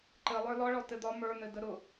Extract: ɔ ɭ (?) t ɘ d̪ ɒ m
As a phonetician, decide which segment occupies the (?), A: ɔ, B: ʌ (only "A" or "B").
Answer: A